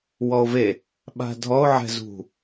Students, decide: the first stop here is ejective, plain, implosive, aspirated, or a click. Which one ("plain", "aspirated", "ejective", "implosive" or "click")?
implosive